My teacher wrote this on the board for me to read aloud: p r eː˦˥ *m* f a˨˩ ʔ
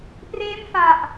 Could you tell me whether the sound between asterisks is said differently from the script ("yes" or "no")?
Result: no